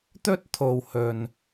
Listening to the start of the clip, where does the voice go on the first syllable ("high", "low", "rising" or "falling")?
high